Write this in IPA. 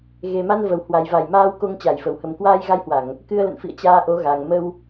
ɣ e˨˩ m a˧ n v ə˧˩ w h w a˨˩ j v a˧˩ j m aː˧ w k o˧ ŋ t͡ɕ a˧˩ j f ə˨˩ w h ə˨˩ m k w aː˧ j ɣ a˧ j h w a˧˩˨ ŋ | k ɨ˧ ə̯ l ə̰˧˨ n f ḭ˧˨ ə̯ t͡ɕ aː˧ ʔ o˨˦ ɣ a˨˩ ŋ m ə˧ w

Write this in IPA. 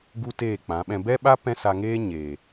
ɡ u˦ t eː˦˨ k͡p ã˨˦ ɓ ɛ̃˧ b ɛ˦ ɓ a˦ p ɛ̃˦ s a˧ ŋ eː˦ ɲ eː˨

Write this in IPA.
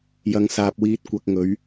j ɐ˨˧ ŋ s aː˨ p̚ w iː˧ t̚ kʷ ɐ˨ k̚ ŋ ɵ˨˧ ɥ

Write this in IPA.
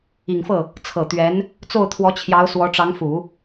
i˨˩ ŋ f ɤ˥˩ | t͡sʰ ɤ˨˩ t̪ ɥ ɛ˧˥ n | t͡s o˥˩ ʊ̯ t̪ʰ w ɔ˧˥ t͡ɕʰ j ɑ˧˥ ʊ̯ s w ɔ˧˥ ʈ͡ʂ ɑ˧˥ ŋ f u˨˩˦

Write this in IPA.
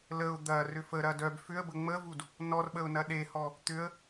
l ə ʊ̯ d̪ ɐ r ʏ f ə ɾ ɐ d œ b f ʏ ə̯ b ə ŋ͡m ə v u d | n ɔ r ɓ ə ʊ̯ n ɐ ɗ e h ɔ | t̪ ʏ ə̯

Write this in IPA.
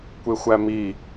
kʷ e xʷ æ m i

